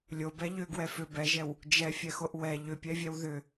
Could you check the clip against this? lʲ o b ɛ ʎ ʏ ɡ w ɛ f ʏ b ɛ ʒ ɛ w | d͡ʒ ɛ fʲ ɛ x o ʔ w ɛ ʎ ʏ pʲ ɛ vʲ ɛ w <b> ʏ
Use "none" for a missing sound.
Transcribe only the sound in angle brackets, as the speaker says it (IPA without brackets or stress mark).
ð